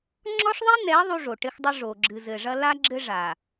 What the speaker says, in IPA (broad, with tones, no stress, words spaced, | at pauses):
ŋ͡ǁɔ˦ʂðˤi˦nɛ˨˦ ðˤu˦ʐo˨ ʈɘ˦xdˤɨ˦ʐo˨ ɡ͡ǁɨ˨zɘ˨ʐɐ˦ la˦ ɡ͡ǁɘ˦ʐa˨